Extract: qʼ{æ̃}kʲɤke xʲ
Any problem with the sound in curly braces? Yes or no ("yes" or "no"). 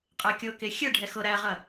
yes